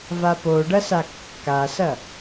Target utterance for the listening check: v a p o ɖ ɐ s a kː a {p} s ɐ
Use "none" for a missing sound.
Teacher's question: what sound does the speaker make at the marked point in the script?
none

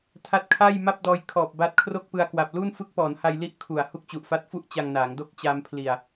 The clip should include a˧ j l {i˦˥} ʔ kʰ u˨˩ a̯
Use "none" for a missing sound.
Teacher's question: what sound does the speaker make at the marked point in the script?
i˦˥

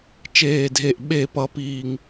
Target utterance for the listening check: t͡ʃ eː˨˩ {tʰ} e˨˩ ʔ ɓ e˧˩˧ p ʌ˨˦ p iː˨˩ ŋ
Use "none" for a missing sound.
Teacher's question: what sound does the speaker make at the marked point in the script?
dʱ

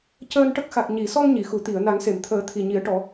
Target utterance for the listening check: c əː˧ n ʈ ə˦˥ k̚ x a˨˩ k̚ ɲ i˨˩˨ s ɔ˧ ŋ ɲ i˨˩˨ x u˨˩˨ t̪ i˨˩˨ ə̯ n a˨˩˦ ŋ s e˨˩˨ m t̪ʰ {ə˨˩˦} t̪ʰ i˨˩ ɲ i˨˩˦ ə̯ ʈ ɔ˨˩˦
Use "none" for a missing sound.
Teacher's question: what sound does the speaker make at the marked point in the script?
əː˨˩˦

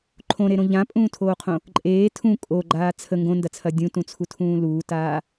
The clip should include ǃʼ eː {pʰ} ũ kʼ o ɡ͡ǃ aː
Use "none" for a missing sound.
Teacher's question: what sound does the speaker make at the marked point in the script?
tʰ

